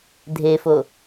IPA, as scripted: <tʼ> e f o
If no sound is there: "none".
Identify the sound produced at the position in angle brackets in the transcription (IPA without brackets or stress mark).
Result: dʱ